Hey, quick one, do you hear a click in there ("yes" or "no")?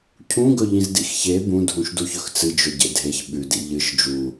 no